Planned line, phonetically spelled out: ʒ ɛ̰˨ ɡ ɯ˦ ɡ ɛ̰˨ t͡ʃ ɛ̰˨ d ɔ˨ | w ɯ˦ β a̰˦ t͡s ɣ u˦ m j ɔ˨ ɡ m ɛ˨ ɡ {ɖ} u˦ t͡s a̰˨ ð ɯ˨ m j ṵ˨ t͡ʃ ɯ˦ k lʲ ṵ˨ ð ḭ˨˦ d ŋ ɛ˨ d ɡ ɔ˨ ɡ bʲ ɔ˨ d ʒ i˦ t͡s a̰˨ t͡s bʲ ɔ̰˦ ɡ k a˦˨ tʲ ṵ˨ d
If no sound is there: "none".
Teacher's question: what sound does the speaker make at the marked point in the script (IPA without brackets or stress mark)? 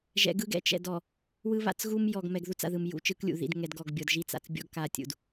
ð